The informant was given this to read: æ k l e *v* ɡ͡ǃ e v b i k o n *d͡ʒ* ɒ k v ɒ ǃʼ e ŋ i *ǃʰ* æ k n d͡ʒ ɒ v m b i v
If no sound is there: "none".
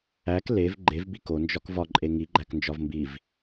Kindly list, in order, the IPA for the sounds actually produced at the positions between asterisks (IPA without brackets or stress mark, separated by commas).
v, d͡ʒ, ɡ͡ǃ